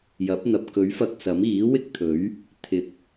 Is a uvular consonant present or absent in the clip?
absent